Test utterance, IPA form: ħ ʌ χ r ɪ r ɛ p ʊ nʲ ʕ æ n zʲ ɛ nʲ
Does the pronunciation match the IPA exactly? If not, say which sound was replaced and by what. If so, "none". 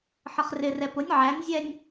none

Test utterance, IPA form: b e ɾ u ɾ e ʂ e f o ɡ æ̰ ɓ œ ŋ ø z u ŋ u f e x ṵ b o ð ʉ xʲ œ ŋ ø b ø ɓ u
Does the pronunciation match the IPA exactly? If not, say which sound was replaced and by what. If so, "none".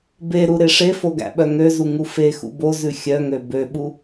ð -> z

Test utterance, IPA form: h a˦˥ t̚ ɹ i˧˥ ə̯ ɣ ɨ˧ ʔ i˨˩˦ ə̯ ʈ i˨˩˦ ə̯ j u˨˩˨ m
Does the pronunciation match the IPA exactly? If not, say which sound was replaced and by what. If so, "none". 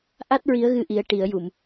h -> ʔ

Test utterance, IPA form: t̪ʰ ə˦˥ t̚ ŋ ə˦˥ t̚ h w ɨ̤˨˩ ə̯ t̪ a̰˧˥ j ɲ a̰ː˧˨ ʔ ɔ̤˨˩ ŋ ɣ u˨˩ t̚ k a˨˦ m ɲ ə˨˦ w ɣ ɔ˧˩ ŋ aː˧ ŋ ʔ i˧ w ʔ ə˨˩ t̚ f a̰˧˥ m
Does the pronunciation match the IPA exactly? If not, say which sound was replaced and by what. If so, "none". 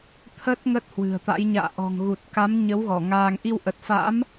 none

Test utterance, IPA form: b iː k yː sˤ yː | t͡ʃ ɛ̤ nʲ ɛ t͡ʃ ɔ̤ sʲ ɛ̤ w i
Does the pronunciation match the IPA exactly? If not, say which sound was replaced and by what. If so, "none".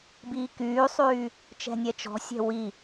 none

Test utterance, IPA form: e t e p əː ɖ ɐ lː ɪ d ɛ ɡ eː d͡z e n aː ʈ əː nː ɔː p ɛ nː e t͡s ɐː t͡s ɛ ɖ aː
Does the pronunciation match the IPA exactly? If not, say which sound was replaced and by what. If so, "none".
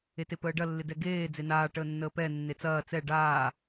ɔː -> əː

